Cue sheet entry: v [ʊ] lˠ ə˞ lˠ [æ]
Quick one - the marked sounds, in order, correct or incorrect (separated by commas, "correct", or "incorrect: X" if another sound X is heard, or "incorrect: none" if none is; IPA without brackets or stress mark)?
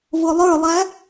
correct, correct